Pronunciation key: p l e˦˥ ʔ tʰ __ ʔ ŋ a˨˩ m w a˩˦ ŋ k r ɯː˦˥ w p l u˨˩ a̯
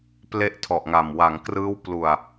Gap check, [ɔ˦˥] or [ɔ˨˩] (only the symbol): ɔ˨˩